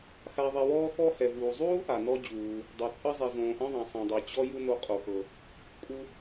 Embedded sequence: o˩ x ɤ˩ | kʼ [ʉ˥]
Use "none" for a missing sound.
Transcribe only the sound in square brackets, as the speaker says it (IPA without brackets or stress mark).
u˥